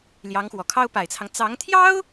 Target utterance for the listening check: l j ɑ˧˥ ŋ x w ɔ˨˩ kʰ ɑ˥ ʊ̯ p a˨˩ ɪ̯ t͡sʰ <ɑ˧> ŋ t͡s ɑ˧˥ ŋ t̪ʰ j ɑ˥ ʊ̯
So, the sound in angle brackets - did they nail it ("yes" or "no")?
no